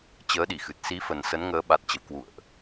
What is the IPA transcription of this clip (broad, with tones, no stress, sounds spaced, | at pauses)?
t͡ɕ əː˨˦ ɗ i˧˩ x ɨ˨˩ t̚ s i˨˦ f ə˨˩ n s ə˨˦ n ŋ əː˨˦ ɓ a˨˩ t̚ t͡ɕ ə̰˧˨ w k w ṵ˧˨ ə̯ ʔ